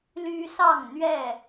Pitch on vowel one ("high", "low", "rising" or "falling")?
high